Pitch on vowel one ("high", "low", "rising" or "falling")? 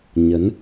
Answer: rising